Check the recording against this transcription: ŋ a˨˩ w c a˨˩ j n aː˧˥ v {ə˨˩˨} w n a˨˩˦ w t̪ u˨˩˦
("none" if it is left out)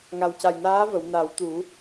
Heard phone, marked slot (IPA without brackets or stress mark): ə˨˩˨